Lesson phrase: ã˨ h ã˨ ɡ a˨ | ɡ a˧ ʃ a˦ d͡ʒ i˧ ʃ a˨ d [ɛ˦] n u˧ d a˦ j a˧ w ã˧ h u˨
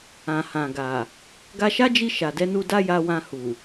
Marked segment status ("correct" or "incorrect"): incorrect